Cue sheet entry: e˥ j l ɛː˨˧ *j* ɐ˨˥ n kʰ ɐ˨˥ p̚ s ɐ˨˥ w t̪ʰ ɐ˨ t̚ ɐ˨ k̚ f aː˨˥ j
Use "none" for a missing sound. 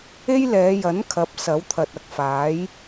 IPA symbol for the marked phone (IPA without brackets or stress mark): j